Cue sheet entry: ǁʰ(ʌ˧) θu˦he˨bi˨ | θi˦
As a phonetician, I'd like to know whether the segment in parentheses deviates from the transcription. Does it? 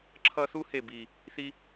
yes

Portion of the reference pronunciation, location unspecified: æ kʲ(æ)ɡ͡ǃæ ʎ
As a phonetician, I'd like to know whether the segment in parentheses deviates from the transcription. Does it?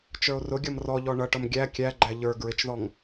no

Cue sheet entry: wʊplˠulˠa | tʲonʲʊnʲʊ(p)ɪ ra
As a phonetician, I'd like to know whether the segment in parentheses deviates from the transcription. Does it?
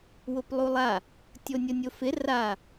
yes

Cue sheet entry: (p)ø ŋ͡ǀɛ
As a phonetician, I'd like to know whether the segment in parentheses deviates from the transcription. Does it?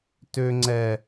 yes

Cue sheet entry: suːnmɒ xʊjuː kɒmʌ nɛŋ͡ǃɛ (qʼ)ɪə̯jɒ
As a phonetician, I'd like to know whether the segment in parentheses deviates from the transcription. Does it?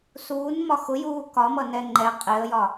no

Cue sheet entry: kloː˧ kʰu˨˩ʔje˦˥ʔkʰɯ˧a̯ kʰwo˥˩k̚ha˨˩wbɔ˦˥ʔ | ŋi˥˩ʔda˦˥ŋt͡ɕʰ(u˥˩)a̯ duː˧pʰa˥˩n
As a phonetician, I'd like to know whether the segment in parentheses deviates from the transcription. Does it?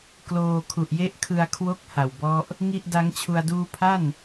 yes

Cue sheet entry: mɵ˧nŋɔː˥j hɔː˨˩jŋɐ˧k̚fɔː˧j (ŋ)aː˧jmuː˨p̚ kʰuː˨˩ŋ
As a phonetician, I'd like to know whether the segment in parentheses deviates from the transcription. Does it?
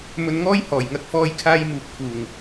yes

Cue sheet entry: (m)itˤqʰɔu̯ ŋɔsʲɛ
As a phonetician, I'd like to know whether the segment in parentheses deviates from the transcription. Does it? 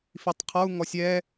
yes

